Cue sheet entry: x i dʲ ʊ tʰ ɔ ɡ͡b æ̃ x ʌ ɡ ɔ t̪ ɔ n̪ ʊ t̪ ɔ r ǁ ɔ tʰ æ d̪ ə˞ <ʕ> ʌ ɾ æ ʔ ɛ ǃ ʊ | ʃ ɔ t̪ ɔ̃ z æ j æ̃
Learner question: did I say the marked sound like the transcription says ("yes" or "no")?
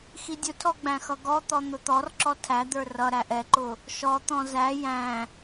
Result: no